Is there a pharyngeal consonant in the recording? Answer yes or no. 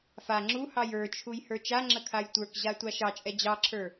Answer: no